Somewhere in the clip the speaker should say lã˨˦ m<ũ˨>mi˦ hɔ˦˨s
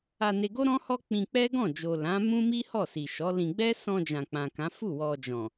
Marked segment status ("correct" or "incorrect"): incorrect